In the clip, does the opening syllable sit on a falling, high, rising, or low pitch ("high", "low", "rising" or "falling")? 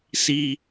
low